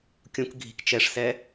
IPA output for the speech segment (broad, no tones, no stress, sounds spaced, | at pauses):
kʲ ũ k ɡʱ i̤ k t͡ʃ ɛ ʂ s ɛ